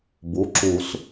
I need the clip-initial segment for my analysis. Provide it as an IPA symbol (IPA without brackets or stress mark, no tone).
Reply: b